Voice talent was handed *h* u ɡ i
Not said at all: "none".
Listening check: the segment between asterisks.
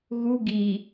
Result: ɣ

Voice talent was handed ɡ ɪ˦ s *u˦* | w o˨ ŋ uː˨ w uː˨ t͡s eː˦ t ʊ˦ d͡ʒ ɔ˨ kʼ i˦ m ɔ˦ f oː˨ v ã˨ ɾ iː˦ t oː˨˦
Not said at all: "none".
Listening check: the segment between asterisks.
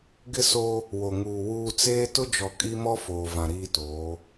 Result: o˦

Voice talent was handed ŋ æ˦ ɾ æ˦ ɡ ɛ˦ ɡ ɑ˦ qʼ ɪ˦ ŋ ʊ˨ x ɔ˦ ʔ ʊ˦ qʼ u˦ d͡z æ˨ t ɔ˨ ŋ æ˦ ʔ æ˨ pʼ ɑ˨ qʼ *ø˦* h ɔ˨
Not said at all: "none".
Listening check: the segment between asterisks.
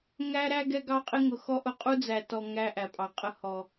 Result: ə˦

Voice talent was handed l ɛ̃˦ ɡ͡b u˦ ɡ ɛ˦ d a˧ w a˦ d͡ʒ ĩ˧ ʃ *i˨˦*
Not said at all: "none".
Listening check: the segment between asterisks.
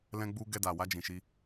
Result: i˦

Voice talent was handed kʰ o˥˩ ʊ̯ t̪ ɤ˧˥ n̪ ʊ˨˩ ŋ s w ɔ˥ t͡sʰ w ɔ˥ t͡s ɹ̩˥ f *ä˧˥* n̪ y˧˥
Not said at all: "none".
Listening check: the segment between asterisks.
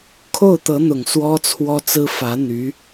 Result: ä˧˥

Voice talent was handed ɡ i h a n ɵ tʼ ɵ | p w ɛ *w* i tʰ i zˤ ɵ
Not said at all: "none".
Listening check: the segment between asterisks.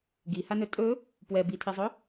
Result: b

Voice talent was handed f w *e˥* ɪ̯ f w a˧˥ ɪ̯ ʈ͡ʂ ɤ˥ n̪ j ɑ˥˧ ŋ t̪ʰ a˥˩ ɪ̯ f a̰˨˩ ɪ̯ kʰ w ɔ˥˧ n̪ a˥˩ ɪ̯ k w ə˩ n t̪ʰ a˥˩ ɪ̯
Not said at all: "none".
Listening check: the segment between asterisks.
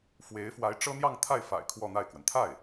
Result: e˧˥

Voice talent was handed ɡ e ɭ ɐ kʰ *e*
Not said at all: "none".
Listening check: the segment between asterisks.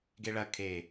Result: e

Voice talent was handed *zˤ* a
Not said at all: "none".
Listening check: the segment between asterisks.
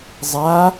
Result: zˤ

